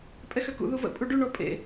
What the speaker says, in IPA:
pʼɛxøkṵ ðuvə̰ pʼuɖy ɳɔpʼḛ

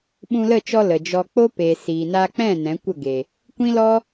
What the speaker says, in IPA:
ɓũ˧lə˦˨t͡ʃɔ˧ lə˨d͡ʒɔ˧ k͡po˦pe˨ siː˨ naː˧k͡pɛ̃˦˨ nɛ̃˨˦kʷə˦˨ɡe˨ | kʷĩ˦lɔ˦

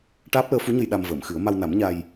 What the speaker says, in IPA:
ʈaː˦˥p̚ləː˧˥fu˧˥ɲə˧j ɗa˧mvəː˨˩˨mxɨ˨˩˦ə̯ ma˧wna˨˩˦mɲa˧j

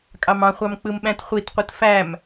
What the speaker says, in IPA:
kʼɑmɑ̃χʷɑm k͡pɯmɓæ̃tχʷitqʷɯt fæm

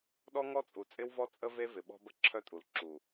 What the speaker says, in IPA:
ɗɔ˦ŋɔ˦t͡sʼu˨t͡sʼɪ˦w vɔ˦t͡sʼə˦ ve˦vɪ˨ɓɔ̤˦ bə˦ǁʰœ˦tʼu˨l ǁu˨

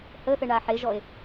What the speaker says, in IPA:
həθɘɳa ħeʒɔe̯

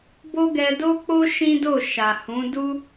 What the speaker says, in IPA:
bo˦ɡɛ˧ do˦k͡po˦ ʃĩ˦do˦˨ ʃa˨ hũ˨˦du˦

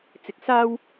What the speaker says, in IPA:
t͡sɪ˨˥k̚saː˥w

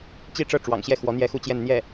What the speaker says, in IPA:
t͡ɕi˥˧ʈ͡ʂɤ˥˩ ʈ͡ʂwɑ̰˨˩ŋɕjɛ˥˩xwɔ˧˥ n̪jɛ˥˧xu˥˧ t͡ɕjɛ˥˧nn̪jɛ˥˩

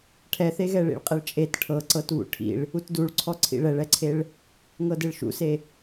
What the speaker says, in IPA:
ʈʰɛθeɣɛ ɭḭɭqʼɛɭt͡ʃʼet ʈʰɤǀɤt βṵʈʰḭɭ | utduɭǀʰɔ ǀʰḭɭɛɭɛǀʰeɭ | ŋɤdeɭʃṵse

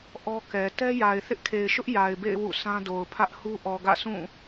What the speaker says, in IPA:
ʔɔ˦kɛ˨ tɛ˦ja˨ɪ̯ θɪ˦ʔkʰe˨ɪ̯ʃʊ˦ʔ ja˨ɪ̯bḛ˦˨ɪ̯ wṵ˦˨sʰã˦do˨ʊ̯ pʰä˦ʔhu˦ ʔɔ˨ɡä̰˦˨sʰũ˦˨

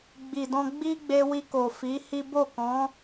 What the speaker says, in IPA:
ɡ͡bi˨dɔ̃˧ ɡ͡bi˦ɡ͡be˧wi˧ko˨ fi˨˦hi˦ bo˦˨kɔ̃˨˦

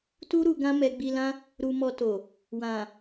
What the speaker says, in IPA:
tu˦ ɾu˧ɡã˦ mɛ˧ɡ͡bi˧lã˦ | ɾu˧mɔ˧to˨ | wã˨

